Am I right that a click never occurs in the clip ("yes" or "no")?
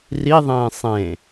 yes